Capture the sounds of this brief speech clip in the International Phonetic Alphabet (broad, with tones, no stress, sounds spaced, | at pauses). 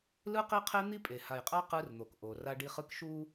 l ɯ˦ q i˦ qʰ e˦ n̪ i˦ pʼ e˨ h a˨ j qʼ a˦ q ɯ˦ r n̪ o˨ k ʔ o˨ r a˦ ɖ i˦ χ ɯ˦ k ʃ u˦